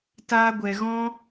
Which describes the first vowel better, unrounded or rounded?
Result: unrounded